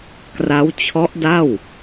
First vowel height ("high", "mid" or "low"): low